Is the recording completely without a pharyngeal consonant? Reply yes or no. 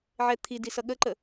no